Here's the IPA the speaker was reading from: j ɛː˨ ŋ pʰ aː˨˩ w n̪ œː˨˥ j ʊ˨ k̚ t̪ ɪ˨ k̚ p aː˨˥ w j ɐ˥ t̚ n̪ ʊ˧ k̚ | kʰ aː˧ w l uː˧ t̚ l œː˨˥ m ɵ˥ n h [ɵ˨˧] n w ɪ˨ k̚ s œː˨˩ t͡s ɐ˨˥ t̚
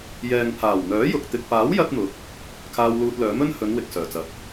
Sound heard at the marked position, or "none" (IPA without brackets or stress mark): ɵ˨˧